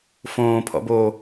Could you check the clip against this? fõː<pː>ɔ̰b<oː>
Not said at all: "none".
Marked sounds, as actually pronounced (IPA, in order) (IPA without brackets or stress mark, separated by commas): pʰ, oː